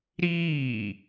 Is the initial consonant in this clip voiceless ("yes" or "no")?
no